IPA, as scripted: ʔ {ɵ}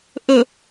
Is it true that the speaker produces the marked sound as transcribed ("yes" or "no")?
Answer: yes